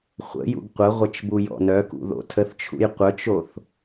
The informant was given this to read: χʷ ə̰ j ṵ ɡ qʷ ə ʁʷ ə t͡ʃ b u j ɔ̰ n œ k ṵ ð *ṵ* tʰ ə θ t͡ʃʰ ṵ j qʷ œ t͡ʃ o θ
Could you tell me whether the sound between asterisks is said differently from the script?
yes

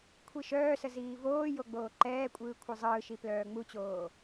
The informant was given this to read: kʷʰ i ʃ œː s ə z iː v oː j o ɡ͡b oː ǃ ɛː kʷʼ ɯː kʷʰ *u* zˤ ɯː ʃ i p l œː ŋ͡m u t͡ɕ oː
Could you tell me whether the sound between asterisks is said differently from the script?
yes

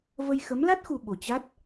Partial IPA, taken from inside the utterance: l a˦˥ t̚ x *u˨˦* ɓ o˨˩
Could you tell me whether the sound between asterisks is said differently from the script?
yes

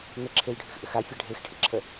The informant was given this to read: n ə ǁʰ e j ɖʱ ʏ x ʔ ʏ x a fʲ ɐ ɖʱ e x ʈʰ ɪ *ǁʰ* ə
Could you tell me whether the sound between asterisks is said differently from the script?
no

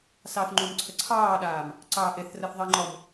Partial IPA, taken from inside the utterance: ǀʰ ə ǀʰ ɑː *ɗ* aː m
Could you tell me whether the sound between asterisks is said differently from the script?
no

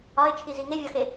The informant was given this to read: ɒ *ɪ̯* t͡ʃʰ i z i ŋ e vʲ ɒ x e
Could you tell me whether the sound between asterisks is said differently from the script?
no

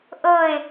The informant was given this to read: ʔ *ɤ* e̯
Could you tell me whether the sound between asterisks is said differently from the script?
no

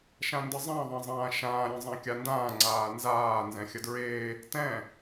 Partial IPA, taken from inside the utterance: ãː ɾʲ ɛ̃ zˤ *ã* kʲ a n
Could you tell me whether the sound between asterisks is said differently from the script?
no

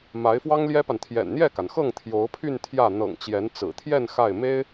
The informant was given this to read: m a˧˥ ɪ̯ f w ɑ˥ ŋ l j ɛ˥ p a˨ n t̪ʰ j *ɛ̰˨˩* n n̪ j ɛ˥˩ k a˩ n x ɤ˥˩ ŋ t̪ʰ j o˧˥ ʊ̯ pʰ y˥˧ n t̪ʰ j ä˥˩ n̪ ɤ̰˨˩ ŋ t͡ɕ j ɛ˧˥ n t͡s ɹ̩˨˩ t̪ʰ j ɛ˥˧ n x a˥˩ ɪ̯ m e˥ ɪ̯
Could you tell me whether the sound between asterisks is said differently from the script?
no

